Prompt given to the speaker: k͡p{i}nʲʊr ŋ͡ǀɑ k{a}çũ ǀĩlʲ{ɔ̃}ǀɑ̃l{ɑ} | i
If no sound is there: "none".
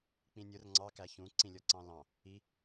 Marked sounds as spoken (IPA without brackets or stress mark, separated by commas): ĩ, æ, ɔ, ɑ̃